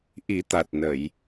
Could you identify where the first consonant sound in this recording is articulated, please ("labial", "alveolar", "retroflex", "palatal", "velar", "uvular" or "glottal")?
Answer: glottal